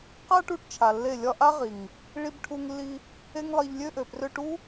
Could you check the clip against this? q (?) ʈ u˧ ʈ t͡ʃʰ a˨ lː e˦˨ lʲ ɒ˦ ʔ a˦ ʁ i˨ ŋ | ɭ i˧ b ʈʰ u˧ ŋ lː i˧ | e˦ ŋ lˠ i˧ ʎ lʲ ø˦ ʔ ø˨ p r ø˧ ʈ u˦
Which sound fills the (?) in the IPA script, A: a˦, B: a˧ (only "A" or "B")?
A